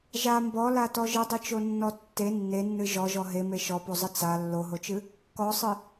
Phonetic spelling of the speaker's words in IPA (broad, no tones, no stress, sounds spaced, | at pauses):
ʒ a m b ɔ l a t ɔ ʒ ɨ dˤ ɨ t͡ʃ o nː ɔ tː e nː e nː ɨ ʒ ɔ ʒ ɔ ɦ e m e ʃ ɔ p o zˤ ɨ t͡s a lː o ɦ o t͡ʃ ɨ | k ɔ sˤ ɨ